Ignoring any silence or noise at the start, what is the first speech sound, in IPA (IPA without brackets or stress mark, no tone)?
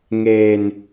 ŋ